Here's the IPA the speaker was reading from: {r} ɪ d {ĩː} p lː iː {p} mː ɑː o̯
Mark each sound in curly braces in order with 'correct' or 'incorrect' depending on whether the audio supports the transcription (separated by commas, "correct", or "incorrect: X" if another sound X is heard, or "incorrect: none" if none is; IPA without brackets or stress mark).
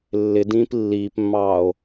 incorrect: lː, correct, correct